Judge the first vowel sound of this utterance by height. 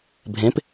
mid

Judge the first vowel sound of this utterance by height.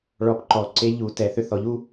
mid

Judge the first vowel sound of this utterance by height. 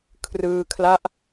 high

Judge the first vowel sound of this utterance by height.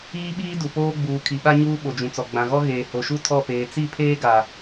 high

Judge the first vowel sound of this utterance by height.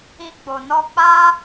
high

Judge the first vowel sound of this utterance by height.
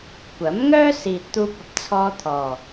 low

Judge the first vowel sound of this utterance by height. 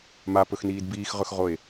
low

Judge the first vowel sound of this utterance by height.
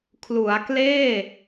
high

